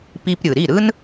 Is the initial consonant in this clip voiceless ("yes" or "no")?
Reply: yes